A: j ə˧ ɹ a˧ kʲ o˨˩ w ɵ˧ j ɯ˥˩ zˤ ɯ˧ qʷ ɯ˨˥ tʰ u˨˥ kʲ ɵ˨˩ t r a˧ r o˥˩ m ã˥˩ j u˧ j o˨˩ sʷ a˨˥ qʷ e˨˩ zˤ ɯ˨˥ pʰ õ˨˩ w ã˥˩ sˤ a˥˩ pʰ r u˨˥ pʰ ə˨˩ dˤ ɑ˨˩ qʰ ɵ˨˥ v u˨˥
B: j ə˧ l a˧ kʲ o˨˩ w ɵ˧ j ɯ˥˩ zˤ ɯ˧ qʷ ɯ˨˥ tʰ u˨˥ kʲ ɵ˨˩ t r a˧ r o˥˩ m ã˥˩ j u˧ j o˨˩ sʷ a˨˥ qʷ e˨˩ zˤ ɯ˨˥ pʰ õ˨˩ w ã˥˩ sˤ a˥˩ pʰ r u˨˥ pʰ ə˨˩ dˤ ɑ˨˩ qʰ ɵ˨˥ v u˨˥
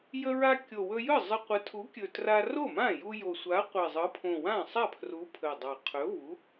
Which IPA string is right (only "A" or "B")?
A